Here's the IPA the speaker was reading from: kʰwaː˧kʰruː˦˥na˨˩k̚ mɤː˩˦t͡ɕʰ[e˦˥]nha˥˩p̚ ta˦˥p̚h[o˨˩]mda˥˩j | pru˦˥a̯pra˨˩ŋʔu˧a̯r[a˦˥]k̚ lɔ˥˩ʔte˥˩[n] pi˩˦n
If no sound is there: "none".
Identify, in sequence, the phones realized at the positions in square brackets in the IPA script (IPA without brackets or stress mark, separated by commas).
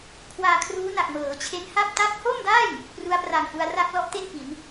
e˦˥, o˥˩, a˥˩, n